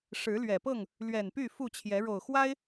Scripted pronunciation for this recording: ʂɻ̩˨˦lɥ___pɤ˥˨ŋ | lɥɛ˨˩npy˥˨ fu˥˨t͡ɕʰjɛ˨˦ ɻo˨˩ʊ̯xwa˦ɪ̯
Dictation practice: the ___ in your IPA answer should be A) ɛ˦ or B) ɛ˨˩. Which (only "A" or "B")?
B